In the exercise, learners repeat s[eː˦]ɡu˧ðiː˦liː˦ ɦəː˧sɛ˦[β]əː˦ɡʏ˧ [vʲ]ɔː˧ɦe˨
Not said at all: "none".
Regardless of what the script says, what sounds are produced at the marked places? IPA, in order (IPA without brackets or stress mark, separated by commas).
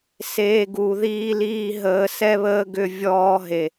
eː˦, β, vʲ